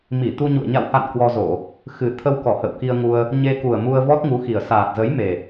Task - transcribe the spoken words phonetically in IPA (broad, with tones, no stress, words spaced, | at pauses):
mi˧˩t̪u˧ɲṵ˧˨ə̯ ɲa̰˧˨wha̰˧˨n kwɔ˧ zo˧˩˨ | xɨ˨˩t̪ʰə˧wkɔ˧˩ hə̰˧˨wki˧ə̯ŋu˧ə̯ | ɲe˧ku˨˩ə̯ mu˧ə̯vɔ˦˥t̚ŋu˨˦xi˨˩ə̯ saː˨˩t̚zə˨˦jme˨˩